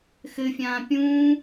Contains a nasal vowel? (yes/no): yes